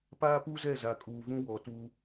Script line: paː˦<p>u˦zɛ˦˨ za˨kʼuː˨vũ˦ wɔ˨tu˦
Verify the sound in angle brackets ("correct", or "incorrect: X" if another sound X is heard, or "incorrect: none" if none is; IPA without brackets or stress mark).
correct